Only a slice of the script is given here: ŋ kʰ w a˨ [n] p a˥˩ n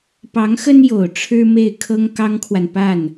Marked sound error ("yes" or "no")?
no